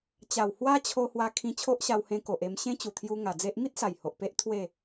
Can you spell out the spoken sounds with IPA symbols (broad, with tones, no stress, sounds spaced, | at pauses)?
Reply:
t͡ɕ a˨˩ w h w a˦ t͡ɕʰ o˧ h w a˧ kʰ ĩ˧ t͡ɕʰ o˦ ʔ ɕ a˧ w h ẽ˧ k o˨ ʔ e˧ m ɕ ẽ˦ t͡ɕ u˨˩ t̪ʰ j u˧ ŋ a˨˩ d͡z e˦ ʔ m i˦ t̚ s a˨˩ j h o˨ ʔ p e˦ ʔ t̪ʰ w e˥˧